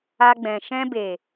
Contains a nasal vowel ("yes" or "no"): yes